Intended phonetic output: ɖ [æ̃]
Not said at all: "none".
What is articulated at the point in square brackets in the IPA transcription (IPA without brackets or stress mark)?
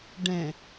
ɛ̃